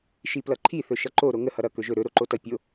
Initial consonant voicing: voiceless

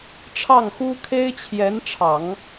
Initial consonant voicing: voiceless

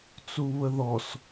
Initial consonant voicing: voiceless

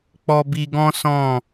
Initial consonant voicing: voiceless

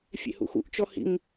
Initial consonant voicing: voiceless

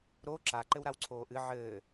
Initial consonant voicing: voiced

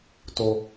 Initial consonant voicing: voiceless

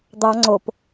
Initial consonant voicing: voiced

